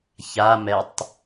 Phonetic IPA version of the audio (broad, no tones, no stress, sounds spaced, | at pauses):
ç a m ɛ tˤ